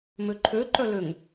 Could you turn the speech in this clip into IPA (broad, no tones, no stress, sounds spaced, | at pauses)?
m ø ǃʰ ø ǃ œ l ø ŋ